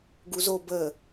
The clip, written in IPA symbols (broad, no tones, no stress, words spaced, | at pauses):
ɡuzo bə